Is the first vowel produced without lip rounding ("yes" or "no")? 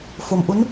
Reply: no